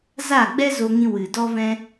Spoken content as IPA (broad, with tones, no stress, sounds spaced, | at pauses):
z a˦˨ ɡ͡b ɛ˦ z o˧ ŋ ĩ˧ w ɨ˨ d ɔ˦ v ɛ̃˦